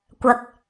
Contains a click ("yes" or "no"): no